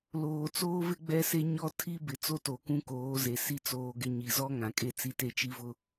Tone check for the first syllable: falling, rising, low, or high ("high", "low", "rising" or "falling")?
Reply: low